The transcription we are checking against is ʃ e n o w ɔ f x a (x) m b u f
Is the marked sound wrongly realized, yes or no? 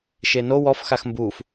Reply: no